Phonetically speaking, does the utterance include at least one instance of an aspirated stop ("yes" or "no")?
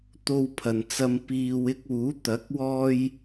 yes